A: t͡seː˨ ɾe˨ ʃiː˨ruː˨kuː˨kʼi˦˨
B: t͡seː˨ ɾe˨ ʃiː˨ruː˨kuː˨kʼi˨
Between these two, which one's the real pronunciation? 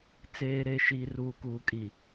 B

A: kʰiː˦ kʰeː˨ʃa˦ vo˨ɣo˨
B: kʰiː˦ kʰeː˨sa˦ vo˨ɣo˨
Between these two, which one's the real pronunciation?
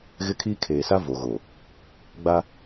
B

